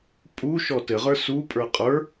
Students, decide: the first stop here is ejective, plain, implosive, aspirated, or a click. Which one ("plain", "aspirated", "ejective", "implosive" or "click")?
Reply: ejective